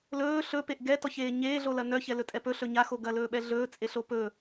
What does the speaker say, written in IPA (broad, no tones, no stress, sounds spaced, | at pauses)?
l ɵː ɬ ɵ p e ʔ ɡ ɛ t ɔ ç eː ɲ eː ɮ o l ɐ n œ ç ɛ l ɵ tʼ ɛ p ɵ ɬ ɵ ɲ a x o ɡ ɐ l ɵː ɓ ɛ ɮ ɵː t͡sʼ e ɬ o p ɵ